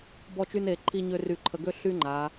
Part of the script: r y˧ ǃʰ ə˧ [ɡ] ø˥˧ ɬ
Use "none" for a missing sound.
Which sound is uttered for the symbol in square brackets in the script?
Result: ɡ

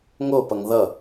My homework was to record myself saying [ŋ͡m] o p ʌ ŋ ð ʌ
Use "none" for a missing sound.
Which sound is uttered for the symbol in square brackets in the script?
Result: ŋ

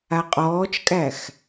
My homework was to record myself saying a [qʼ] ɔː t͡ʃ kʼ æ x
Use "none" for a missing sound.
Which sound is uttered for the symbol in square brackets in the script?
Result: qʼ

